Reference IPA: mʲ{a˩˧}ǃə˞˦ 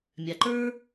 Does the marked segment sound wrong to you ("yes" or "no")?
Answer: no